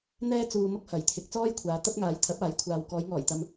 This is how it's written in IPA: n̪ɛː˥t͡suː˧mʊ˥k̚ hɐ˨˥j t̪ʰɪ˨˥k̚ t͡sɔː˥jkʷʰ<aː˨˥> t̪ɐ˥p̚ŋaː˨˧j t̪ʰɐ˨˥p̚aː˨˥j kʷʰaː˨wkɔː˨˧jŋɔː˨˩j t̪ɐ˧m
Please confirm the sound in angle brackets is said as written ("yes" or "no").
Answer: no